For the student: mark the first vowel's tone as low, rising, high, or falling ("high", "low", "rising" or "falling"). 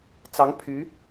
rising